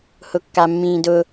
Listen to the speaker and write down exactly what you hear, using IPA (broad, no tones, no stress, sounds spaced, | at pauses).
h ʊ kː a mː ĩː d ʊ